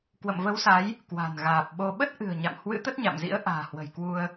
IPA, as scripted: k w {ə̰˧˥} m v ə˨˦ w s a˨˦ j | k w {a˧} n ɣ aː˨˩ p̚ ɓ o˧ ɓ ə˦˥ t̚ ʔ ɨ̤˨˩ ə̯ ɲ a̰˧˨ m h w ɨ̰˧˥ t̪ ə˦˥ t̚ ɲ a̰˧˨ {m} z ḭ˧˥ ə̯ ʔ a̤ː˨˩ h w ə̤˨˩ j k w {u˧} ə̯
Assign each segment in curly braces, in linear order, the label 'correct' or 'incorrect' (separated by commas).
incorrect, incorrect, correct, correct